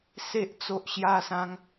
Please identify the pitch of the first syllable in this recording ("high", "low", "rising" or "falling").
high